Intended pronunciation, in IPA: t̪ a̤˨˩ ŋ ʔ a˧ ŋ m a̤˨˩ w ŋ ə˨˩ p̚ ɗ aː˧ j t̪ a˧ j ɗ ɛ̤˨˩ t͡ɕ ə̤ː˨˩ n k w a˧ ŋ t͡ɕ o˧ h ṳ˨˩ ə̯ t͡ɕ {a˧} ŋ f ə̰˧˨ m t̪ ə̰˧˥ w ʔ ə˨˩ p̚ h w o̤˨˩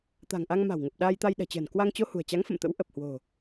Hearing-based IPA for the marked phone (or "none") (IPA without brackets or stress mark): a˨˦